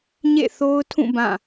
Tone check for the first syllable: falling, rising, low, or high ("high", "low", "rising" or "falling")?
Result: falling